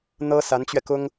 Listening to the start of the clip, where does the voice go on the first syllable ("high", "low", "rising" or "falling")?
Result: high